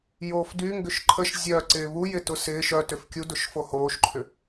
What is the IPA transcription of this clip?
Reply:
j oː f d y ŋ ɡ ʏ ʃ ǃʰ ə ʃ zʲ œ ǀ ɪː β u j ɪ t ʊ s ɪː ʃ œ t ʏ f kʲ u d ʊ ʃ f o h oː ʃ ǃʰ ʏ

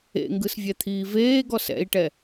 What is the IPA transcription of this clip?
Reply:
ḛ ŋ ɡ ɯ s vʲ ɛ t̪ʰ iː v eː ɡ ɔ s ɛ̰ i̯ ʈ ɛ

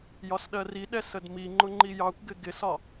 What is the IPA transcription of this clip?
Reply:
j ɒ s ɗ ɜ r i ɗ ɛ s ə d m i ŋ͡ǃ ʊ ŋ͡ǃ i j ɑ kʷ ɡ ɪ ɡ ɪ s ɒ

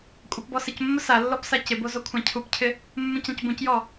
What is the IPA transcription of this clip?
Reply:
kʷʼ a p b ɔ s ɪ c mː ʊ s a lː ɔ b s a c ɪ b o z o kʷʰ ã cʰ u p cʰ ɪ | mː ũ c ã c b ũ c j ɔ

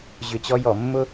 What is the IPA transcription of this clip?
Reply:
ʑ ʏ˧˩ t͡ɕ ɔ˥ j ɔ˧˩˧ mː ʊ˥

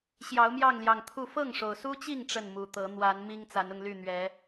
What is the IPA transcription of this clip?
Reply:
ɕ j ɑ˨˦ ʊ̯ m j ɑ˥˨ ŋ l j ɑ˨˩ ŋ t̪ʰ u˥˨ f ɤ˥˨ ŋ ʂ o˩ ʊ̯ s u˦ t͡ɕ i˥˨ ŋ ʈ͡ʂ ə˥˨ n m u˨˩ t̪ ɤ˨˦ n̪ w a˨˦ n m i˦ ŋ t͡s a˨˦ n ʊ˧ ŋ l y˥˨ n̪ ɥ ɛ˨˦

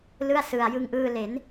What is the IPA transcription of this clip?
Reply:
l ɯ˥˩ a̯ s ɯ˧ a̯ j ɯ˧ ŋ ʔ ɯː˧ l e˩˦ n

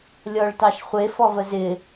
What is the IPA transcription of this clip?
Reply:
lʲ ɔ ɭ t ɑ ʃ χʷ e f ɔ v ə z ɪ

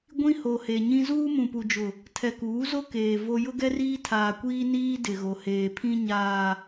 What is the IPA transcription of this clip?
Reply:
ɡʷ ĩ˦ h o˨ h e˨ ɲ ĩ˦ z uː˦ m ũ˨ p u˨ d͡ʒ ʊ˨ | tʰ ɛ˨ k uː˨˦ z o˦ k eː˨ v o˦ j ʊ˦ ɡ ɛ˦ r iː˦ tʰ aː˨ kʷ iː˦ n iː˦ d ɪ˨ ɣ o˨ h eː˨ pʰ ĩ˦ ɲ aː˨

